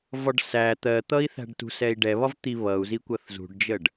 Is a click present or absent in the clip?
absent